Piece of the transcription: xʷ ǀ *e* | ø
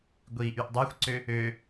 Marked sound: incorrect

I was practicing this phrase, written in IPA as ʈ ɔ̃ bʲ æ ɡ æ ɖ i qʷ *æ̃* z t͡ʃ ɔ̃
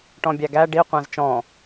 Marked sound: correct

